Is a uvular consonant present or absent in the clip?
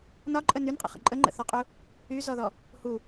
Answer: present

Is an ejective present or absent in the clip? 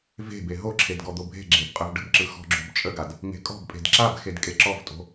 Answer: present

